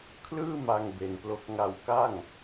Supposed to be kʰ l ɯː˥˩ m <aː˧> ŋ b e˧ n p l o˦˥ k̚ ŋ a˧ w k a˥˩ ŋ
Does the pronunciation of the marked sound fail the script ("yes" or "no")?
yes